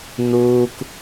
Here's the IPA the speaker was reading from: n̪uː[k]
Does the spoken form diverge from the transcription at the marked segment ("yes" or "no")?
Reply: no